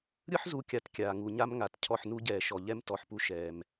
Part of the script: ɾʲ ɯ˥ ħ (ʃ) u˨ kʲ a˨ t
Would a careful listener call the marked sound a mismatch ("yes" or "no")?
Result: yes